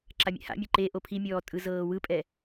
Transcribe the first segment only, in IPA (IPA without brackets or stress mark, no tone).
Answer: ǁ